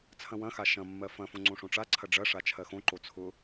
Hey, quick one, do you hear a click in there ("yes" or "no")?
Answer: yes